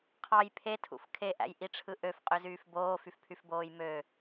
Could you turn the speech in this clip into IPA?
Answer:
qʰ ɑ j pʰ e tʰ ṵ f kʰ e ʔ æ̰ j ʔ i ʈ͡ʂʰ ɯ ʔ ø f qʼ ø z yː f b oː f y f pʰ y f b oː j m ø

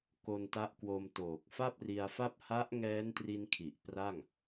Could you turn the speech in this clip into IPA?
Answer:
k o˧ n t a˦˥ ʔ k w o˧ m t oː˨˩ k̚ f a˥˩ p̚ r i˧ a̯ f a˥˩ p̚ h a˦˥ ʔ ŋ ɛː˦˥ n t r i˧ n kʰ i˨˩ ʔ p r a˥˩ ŋ

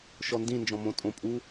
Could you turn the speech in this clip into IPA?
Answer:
ʃ ɔ n d ĩ n d͡ʒ ɔ̃ m õ tʼ õ pʼ u

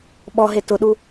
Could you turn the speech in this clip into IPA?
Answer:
ɓ ɔ ɦ e t ʊ ɗ u

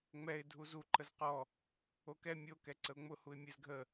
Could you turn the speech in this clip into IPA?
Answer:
ŋ͡m ɛ ɪ̯ dʱ u z u ǃ ə z q ɔ | o k ɛ mʲ o k ɛ ǀ ə ʊ̯ ŋ͡m ʊ h u ɪ̯ mʲ ɛ z ɡʱ ə

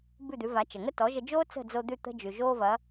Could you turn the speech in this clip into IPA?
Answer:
b ʉ˥˩ d̪ ʉ˩˥ v a˩˥ t͡ʃ ə˩ ŋ ə˥ t ɔ˩˥ ʒ ə˧ d͡ʒ oː˥ t͡s ə̤˥˩ d͡z o˧ d̪ ʉ˥˩ t̪ ə̤˥ d͡ʒ ʉ˩ ʒ oː˥ v ɐ˩˥

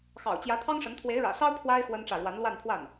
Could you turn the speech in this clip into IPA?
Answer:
x ɑ̰˨˩ ʊ̯ t͡ɕ j ä˧˥ t̪ʰ ɑ˥ ŋ ʂ ə˧˥ n t̪ʰ w e˧˥ ɪ̯ ɻ ä̰˨˩ s ɑ˥ ʊ̯ pʰ w a˥ ɪ̯ x w ə˥ n ʈ͡ʂ ä˥˩ ɻ w a˧˥ n l w a˥˧ n pʰ w a˥˩ n

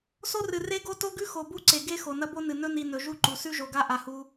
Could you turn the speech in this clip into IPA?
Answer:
s o˦ r ɨ˨ r e˦ ɡ o˦ t o˦ ɡ ʉ˦ x o˨ b u˦ ǀ e˨ ɡ e˦ x o˨ n ɐ˦ b o˦ n ɨ˨ n ɵ˦ n i˨ n ɵ˨ ʒ u˦ ǃ u˨ s ʉ˦ ʒ o˨ ɡ a˦ ʔ a˨ h u˦

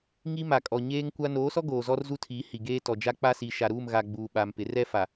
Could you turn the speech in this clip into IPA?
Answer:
ŋ i˦ m a˨ kʼ ɔ˨ ɲ eː˦ ŋ kʷ a˦ n oː˨˦ s ɔ˦ ɡ oː˨ z ɔ˦ r z u˦ tʰ i˨˦ h i˨ ɡ eː˦ t ɔ˨ d͡ʒ a˦ k͡p a˦ s i˨ ʃ a˨ ɾ uː˦˨ m ɣ a˨ ɡ͡b uː˨ ɓ a˨ m p ɪ˨˦ r ɛ˦ f a˨

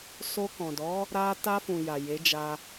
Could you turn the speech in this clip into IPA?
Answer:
s o˧ k ɔ̃˨ d ɔ˨˦ | ɾ a˧ t a˧ f ũ˨ j a˨ j e˨˦ d͡ʒ a˧

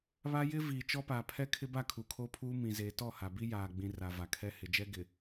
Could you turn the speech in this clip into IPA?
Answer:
β a˦ j ɪ˦ v iː˨ t͡ʃ ɔ˦ p aː˨ pʰ ɛ˦ kʰ ɪ˦ b a˦˨ kʰ uː˨ kʰ oː˦ pʰ uː˦ m ĩ˨ z eː˨ t ɔ˦˨ h a˨ b i˦ j aː˨ ɡ͡b ĩ˨ r a˨ v a˨ kʰ ɛ˦ h ɪ˨ d͡ʒ ɛ˦ ɡ ɪ˨

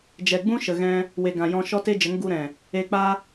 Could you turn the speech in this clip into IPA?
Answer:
d͡ʒ ɛ˨ ɡ͡b ũ˦ ʃ ə˨ ɣ ɛ̃˦ | w e˨ ɡ ã˨ j ɔ̃˧ ʃ ɔ˦ t e˦ d͡ʒ ə˨˦ ŋ ɡ u˧ ɾ ɛ̃˨ | e˧ k͡p a˦

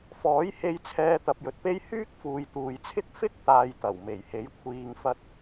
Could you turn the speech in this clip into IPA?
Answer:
f ɔː˨˥ j h e˧ j t͡sʰ ɛː˧ t̪ ɐ˨ p̚ j ɵ˨ t̚ p e˥ j h yː˥ k̚ f uː˨ j t̪ uː˨ j t͡sʰ ɪ˥ k̚ f ɪ˥ k̚ t̪ aː˧ j t̪ ɐ˨˩ w m e˨˩ j h e˨˥ j kʷʰ iː˨ ŋ f ɐ˧ t̚

